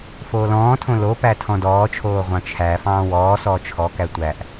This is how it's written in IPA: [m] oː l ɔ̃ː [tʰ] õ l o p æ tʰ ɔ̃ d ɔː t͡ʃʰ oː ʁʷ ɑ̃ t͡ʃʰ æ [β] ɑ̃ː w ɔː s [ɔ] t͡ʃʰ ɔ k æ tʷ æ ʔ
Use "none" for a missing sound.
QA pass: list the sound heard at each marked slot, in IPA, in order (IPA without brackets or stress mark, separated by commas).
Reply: f, tʰ, f, ɔː